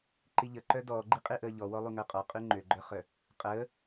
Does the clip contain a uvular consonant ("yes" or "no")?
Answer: yes